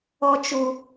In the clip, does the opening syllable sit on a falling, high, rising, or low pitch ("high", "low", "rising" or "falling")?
high